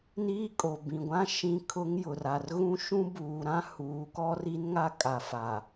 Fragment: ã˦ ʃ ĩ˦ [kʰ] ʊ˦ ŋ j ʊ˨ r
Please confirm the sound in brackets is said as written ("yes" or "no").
yes